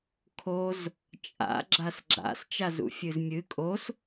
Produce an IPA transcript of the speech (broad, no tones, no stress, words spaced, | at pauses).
kʰoz | t͡ʃʼa̰ ɡ͡ǁasɡ͡ǁa̰s t͡ʃazṵfʲɨzmʲɨ kʼos